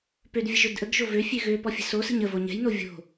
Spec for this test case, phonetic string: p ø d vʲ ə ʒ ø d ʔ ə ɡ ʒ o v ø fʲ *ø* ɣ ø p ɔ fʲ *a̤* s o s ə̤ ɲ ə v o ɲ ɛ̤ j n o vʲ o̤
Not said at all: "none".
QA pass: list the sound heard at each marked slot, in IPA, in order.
ø, ə̤

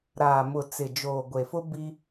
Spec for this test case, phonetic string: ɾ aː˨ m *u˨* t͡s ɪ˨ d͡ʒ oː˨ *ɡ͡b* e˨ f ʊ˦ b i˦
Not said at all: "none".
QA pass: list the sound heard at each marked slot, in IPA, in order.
ʊ˨, ɡʷ

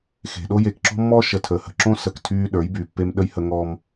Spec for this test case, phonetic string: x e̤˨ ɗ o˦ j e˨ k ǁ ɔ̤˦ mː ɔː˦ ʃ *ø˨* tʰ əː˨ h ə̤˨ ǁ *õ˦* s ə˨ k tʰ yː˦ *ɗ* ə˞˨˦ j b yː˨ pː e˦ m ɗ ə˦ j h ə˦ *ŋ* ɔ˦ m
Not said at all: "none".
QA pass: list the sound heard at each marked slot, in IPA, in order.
ə˨, õ˦, ɗ, ŋ

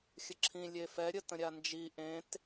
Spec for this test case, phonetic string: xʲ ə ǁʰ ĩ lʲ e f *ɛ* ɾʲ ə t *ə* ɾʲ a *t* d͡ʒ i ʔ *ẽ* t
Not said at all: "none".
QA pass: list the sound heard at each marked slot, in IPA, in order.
ɛ, ə̃, n, ẽ

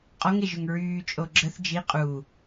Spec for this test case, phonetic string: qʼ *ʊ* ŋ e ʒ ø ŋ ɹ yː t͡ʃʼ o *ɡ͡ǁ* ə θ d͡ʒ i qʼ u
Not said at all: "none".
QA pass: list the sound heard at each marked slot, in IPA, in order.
ɔ, ɡ͡ǁ

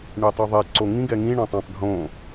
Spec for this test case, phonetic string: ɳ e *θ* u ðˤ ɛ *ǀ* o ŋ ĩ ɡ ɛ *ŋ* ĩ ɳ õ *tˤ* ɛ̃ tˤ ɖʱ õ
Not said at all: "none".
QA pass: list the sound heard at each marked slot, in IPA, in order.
tˤ, ǀ, ŋ, tˤ

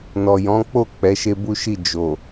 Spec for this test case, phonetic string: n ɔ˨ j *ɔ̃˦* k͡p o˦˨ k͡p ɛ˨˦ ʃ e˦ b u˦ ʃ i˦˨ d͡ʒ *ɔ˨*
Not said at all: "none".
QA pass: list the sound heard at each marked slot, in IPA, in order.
ɔ̃˨˦, o˨

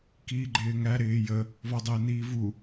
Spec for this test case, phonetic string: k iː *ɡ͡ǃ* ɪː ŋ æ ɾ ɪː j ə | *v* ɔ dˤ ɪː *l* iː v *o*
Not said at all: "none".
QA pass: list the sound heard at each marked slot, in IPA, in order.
ɡ͡ǃ, v, n, u

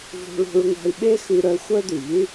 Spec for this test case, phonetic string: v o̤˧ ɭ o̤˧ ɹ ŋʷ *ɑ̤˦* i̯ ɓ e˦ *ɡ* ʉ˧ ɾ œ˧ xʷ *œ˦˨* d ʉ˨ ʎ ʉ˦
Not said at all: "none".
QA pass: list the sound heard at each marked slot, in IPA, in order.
ɑ̤˧, x, œ˦

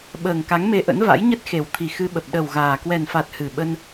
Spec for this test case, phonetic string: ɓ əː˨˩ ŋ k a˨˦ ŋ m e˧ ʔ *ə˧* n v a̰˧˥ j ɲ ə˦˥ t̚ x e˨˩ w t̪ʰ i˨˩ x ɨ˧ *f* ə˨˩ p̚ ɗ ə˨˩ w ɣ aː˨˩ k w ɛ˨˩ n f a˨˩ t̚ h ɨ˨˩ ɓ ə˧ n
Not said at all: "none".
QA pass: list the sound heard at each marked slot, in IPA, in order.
ə̰˧˥, ɓ

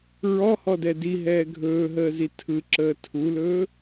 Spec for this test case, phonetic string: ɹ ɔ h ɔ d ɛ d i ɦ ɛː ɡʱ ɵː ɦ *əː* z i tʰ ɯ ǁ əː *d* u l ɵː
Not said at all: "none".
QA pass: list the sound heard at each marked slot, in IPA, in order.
əː, tʰ

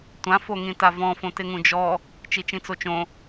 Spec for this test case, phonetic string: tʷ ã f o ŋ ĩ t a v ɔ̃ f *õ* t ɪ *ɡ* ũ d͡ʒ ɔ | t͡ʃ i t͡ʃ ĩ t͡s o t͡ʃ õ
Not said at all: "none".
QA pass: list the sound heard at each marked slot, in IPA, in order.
õ, ŋ

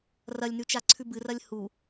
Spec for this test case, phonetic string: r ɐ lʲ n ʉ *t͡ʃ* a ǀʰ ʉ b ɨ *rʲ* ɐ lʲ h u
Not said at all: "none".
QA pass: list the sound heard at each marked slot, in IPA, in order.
t͡ʃ, r

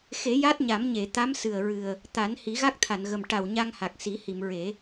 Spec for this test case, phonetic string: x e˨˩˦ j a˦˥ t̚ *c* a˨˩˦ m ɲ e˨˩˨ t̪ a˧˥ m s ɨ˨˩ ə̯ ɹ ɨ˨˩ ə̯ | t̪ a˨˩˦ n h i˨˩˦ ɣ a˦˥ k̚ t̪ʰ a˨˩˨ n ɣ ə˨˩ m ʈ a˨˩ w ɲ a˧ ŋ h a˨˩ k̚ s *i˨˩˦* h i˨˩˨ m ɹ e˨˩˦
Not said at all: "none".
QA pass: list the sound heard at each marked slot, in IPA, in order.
ɲ, i˨˩˦

